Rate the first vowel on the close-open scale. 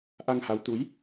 open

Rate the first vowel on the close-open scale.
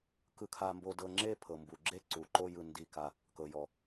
close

